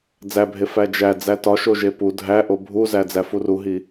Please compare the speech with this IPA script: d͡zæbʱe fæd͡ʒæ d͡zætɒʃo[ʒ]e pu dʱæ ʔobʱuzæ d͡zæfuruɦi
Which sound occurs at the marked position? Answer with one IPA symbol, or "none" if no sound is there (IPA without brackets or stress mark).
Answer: ʒ